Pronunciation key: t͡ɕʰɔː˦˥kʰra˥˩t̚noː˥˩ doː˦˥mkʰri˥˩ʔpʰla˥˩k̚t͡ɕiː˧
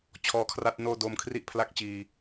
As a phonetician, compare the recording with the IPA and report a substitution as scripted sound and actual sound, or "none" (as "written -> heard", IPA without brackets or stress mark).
none